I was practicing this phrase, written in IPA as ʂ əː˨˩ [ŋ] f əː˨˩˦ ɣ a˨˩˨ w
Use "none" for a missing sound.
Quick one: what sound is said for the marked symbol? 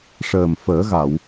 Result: m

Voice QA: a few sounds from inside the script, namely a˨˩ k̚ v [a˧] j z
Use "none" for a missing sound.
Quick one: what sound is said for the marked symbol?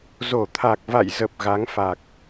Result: a̰˧˨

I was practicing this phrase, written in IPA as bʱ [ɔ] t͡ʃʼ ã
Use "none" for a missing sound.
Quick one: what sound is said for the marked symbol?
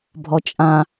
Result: ɔ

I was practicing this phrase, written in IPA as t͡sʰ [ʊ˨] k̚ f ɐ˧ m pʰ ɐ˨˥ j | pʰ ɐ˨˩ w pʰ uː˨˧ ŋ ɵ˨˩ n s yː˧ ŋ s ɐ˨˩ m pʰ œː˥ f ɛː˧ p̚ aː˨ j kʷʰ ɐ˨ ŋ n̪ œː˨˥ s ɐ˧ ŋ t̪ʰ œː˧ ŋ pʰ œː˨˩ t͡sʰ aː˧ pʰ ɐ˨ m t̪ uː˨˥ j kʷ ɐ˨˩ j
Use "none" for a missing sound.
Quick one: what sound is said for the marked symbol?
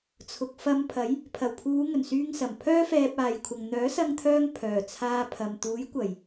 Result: ʊ˨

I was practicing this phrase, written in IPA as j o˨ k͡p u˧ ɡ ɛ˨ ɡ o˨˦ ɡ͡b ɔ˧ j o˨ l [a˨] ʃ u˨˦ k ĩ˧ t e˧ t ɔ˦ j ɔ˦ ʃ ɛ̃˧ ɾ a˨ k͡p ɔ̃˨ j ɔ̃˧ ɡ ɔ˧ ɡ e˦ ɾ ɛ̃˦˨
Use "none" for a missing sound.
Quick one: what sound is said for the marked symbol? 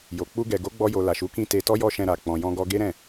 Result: a˨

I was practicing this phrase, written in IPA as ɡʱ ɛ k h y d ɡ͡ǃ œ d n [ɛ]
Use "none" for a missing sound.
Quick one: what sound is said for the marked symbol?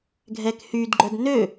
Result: ø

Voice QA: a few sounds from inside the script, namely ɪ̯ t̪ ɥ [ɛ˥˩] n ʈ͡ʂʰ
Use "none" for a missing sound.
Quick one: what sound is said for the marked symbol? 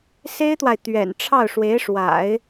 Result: ɛ̰˨˩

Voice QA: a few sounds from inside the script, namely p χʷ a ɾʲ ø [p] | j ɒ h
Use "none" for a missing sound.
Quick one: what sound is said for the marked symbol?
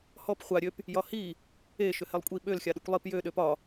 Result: p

